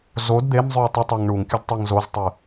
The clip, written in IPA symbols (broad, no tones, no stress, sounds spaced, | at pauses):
z o d d̪ e m zˤ ʉ w tˤ u tˤ a ŋ ɳ u ŋ kʲ ʉ d tˤ e ŋ z o z tˤ ɨ